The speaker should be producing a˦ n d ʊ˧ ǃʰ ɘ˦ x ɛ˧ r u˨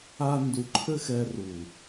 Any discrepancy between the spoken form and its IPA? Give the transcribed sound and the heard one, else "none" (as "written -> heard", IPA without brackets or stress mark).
ʊ˧ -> u˧